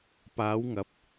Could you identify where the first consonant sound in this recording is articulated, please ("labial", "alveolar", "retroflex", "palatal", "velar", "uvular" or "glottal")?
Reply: labial